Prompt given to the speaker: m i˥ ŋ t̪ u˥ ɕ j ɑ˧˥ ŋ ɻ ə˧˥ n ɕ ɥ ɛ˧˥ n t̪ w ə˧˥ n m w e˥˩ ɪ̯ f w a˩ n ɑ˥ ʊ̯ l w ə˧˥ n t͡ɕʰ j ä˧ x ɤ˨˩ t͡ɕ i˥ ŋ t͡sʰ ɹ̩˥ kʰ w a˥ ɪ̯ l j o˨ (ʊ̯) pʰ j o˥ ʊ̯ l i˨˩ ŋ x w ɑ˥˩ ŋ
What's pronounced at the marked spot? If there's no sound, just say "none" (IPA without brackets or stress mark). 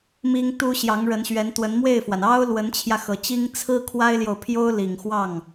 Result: ʊ̯